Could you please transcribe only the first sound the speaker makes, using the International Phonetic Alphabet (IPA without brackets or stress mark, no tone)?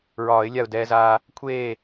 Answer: ɹ